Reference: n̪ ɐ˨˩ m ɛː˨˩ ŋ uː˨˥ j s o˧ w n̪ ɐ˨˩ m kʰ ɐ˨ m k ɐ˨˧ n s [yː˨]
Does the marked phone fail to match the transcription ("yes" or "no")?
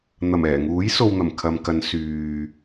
no